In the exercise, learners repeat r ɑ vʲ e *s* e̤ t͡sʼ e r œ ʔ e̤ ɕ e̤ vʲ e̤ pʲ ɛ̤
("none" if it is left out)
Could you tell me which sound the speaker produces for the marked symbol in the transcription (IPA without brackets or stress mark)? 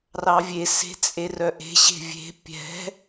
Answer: s